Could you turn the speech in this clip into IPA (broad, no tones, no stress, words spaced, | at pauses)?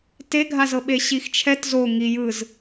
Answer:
teɡʱazɤɓe ɕixt͡ʃʰɛt zo ŋi jɯz